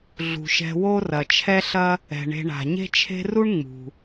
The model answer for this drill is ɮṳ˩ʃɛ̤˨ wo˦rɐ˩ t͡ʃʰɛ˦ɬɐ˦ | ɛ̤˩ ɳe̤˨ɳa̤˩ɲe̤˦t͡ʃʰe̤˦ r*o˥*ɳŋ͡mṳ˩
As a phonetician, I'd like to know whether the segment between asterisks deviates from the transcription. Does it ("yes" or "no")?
yes